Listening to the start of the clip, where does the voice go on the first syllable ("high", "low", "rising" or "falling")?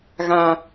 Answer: low